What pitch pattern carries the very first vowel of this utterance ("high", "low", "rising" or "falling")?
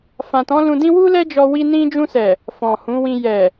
low